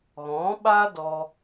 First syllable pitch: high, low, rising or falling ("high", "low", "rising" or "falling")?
rising